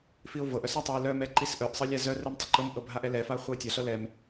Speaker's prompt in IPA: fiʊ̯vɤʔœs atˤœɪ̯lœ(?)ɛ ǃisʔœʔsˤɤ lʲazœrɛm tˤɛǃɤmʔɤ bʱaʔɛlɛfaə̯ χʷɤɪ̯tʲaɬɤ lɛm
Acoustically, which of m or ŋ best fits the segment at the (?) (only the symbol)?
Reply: m